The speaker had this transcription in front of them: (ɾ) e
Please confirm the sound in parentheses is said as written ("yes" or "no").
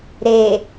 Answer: yes